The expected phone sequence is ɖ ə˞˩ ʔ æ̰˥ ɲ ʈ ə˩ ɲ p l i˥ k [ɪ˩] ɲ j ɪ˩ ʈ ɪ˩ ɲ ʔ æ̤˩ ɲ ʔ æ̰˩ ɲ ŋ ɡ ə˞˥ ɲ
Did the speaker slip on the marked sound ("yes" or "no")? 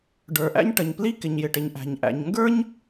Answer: no